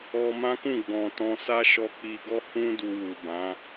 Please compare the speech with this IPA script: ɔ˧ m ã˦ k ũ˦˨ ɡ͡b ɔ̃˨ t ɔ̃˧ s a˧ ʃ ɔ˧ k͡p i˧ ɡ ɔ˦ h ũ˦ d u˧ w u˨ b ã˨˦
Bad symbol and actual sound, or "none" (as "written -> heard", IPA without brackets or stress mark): a˧ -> a˦